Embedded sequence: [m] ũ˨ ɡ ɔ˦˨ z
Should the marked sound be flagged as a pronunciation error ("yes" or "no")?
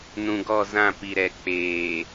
yes